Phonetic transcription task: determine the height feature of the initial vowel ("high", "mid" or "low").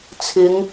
high